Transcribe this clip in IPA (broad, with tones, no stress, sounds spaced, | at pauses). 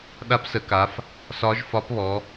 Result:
ɗ a˧˥ p s ə˩˧ k a˩˧ f | s ɒ˧˥ ʒ f ɒ˧˥ p β ɔ˩˧